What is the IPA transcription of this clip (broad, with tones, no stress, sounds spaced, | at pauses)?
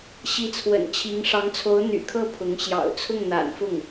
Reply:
ɕ i˧˥ t͡sʰ w ə̰˨˩ n t͡ɕʰ i˧˥ ŋ ʂ ɑ˧˥ ŋ t͡sʰ o˧˥ ʊ̯ n̪ y̰˨˩ kʰ ɤ˥˩ pʰ ʊ˧˥ ŋ ɕ j ɑ̰˨˩ ʊ̯ t͡sʰ ʊ˥˩ ŋ n̪ a̰˨˩ n f ʊ˥˩ ŋ